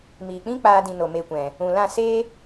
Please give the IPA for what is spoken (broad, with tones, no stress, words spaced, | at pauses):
miː˨k͡pĩ˦ k͡paː˧dĩ˨ no˨me˧kʷɛ̃˨ | ũ˨lã˦˨ seː˦